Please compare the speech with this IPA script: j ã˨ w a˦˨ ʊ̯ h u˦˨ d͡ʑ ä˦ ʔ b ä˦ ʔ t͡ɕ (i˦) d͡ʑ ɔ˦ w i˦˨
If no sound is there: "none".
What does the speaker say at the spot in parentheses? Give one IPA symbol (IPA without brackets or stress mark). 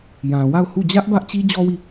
i˦